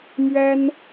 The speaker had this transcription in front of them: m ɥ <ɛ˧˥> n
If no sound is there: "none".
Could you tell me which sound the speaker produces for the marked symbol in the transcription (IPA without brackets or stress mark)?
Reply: ɛ˥